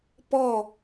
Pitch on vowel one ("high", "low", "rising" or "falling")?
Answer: falling